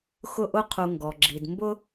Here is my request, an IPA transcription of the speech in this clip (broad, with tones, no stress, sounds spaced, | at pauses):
x ʊ˦ ʔ ʊ˦ qʰ u˨ ŋ ɡ ɔ˩ ɡ͡ǁ i˩ d m b ʊ˥